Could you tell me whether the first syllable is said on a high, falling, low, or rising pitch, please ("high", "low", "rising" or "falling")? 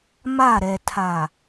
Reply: falling